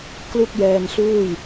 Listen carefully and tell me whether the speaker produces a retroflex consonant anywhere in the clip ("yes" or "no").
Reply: no